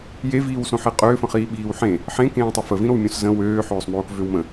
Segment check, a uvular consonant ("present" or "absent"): present